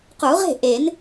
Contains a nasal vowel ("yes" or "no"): no